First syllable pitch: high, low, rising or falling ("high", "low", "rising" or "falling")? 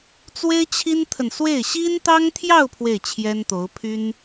high